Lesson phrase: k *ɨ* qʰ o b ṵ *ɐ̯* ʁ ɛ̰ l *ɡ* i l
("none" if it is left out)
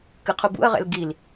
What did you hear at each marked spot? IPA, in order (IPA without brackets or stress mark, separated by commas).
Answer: ɨ, ɐ̯, ɡ